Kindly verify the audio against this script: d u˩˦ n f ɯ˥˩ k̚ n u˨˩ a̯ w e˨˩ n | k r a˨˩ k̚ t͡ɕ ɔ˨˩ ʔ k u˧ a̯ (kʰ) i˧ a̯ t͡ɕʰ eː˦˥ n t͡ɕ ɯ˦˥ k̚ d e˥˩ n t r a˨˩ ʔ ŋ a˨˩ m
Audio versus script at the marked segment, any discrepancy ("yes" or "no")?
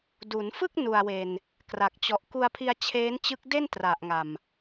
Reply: yes